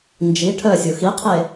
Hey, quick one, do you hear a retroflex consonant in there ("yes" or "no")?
yes